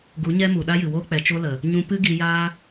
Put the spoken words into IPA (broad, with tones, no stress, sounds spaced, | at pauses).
ɡ u˨˦ ɲ ɛ˦ m u˨ ɗ a˦ j ɨ˨ w oː˦ k͡p ɛ˨ t͡ʃ o˦ l ə˨ | ɲ ũ˧ p ɨ˦ ɡ i˧ j aː˦